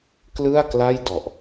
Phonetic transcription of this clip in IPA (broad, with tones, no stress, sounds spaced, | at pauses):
k l ɯ˥˩ a̯ k l a˥˩ j d ɔ˨˩ ʔ